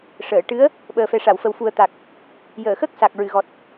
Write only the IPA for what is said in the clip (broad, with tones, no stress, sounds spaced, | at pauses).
ʂ əː˨˩˨ ʈ ɨ˧˥ ə̯ | ɓ əː˨˩ f ɛ˨˩ ʂ a˨˩˨ w f ə˨˩ w f u˨˩ ə̯ t̪ a˨˩ k̚ | j əː˨˩˨ x ə˦˥ k̚ s a˨˩ k̚ ɹ ɨ˨˩˨ ɣ ɔ˨˩ t̚